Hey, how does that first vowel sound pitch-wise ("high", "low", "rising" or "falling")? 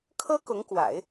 high